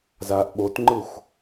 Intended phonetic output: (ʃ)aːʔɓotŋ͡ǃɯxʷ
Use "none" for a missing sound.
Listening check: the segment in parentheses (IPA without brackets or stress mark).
z